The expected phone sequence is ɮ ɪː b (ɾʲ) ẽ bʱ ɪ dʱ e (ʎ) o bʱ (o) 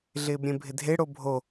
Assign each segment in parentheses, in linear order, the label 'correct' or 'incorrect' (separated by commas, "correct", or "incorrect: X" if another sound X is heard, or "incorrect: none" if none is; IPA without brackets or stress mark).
correct, incorrect: ɽ, correct